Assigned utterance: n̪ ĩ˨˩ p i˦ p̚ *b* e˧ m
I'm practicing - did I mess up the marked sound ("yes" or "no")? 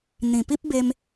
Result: no